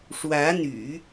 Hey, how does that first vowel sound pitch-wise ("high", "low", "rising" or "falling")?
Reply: rising